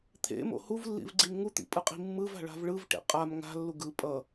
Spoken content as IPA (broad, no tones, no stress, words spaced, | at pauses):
t̪ʰḛmo̰ huvlːḭvɡ͡ǀim ŋut̪ḭpʼɯqʼi̤ mːɯva̤ɭa̤v ɭɯvʈḛ qʼam ŋa̤lːu ɡɯ pʼʌ